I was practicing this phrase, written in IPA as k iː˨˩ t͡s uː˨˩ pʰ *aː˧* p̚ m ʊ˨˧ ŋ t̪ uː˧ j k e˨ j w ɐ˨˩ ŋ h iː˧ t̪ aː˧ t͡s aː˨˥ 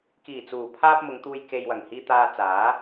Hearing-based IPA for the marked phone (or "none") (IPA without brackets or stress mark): aː˧